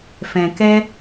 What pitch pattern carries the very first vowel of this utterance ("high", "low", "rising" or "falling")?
low